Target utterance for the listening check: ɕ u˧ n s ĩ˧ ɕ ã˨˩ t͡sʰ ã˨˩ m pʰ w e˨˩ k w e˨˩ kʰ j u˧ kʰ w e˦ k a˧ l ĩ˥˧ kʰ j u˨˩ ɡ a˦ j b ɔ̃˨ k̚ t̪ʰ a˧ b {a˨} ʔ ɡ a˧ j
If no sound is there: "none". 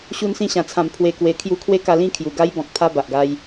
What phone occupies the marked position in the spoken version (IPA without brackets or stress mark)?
a˨